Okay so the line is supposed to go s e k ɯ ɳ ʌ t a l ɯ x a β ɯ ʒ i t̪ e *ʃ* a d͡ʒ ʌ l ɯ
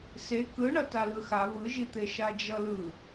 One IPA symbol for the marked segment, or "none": ʃ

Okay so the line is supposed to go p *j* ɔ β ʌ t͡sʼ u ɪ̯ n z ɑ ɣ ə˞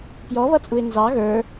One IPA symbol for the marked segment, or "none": j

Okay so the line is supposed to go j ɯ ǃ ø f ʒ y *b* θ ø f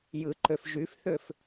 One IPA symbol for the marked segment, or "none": f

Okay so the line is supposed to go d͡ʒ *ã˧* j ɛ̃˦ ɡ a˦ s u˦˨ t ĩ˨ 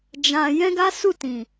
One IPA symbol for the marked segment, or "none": ã˧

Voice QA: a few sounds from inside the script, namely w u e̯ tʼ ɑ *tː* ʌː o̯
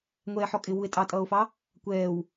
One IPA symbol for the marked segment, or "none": tʼ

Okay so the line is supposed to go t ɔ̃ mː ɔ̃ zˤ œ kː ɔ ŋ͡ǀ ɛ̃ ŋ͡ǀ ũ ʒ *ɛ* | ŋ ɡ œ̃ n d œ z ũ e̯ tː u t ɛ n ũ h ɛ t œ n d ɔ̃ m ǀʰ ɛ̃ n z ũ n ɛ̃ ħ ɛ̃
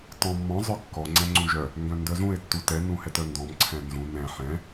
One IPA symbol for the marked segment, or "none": œ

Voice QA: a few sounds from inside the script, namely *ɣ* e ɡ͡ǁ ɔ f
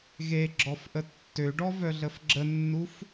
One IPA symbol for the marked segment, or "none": ɣ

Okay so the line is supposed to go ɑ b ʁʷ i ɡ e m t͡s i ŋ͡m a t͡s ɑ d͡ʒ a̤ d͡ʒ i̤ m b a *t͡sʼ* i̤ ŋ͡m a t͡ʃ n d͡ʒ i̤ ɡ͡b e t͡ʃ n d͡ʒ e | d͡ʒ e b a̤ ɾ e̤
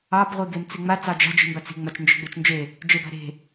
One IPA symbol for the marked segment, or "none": t͡s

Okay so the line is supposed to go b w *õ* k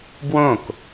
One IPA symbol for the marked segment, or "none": õ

